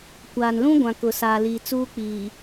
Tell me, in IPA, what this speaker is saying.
kʷ aː˨ n l ũ˦ ɡʷ ã˨ k ʊ˨ s aː˨ l iː˨ t͡s uː˦ k͡p iː˨

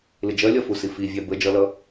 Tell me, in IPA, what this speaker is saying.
l ɪ d͡ʒ ɜ lʲ ɒ f u s i f i vʲ æ b ə d͡ʒ ʌ l ʌ

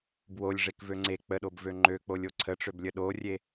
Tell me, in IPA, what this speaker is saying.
b w o lʲ ʐ e k v ø ŋ͡ǀ e k͡p ə ɗ o b v ø ŋ͡ǃ ø k͡p o lʲ o ǀʰ ə ʈ͡ʂ ø b lʲ ə ɗ o rʲ e

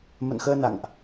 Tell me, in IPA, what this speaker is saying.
m ə̰˧˨ n x əː˧ n a̰˧˨ ŋ ʔ

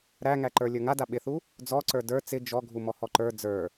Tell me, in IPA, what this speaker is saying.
ɾ æ ŋ æ ǃ ə˞ lʲ ə˞ ŋ a d a ɓ ɪ θ u | d͡z ɔ ǀ ə˞ d ə˞ t͡s ɪ d͡ʒ ɔ ɡʱ u m ɔ h ɔ ǃ ə˞ d͡z ə˞

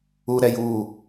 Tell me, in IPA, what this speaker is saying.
u ɾ ɛ j uː

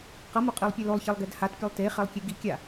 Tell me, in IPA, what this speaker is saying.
q ʌ m o qʼ i lˠ pʲ ɛ l o lˠ ç e lˠ ɡ ɛ d h a t pʲ a lˠ t e χ ɛ lˠ kʲ e ɡ i kʲ a

